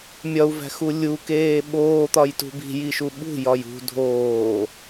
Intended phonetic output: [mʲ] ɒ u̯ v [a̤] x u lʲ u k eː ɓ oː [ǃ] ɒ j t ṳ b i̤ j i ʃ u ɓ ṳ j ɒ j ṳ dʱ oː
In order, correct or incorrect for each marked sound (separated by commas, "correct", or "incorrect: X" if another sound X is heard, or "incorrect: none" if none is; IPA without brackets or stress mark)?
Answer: correct, incorrect: æ̤, incorrect: t̪